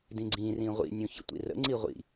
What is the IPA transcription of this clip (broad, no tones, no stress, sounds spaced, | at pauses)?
d ĩ ɡ͡ǀ ĩ r ĩ ʁʷ ḭ nʲ ũ ç ə̰ tʷ ḭ r ə̰ ŋ͡ǀ i ʁʷ ḭ